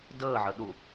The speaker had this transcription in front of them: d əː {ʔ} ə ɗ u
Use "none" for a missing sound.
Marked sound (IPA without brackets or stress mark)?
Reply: ʕ